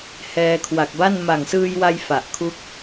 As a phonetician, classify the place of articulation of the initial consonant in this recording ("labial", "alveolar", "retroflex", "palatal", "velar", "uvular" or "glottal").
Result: glottal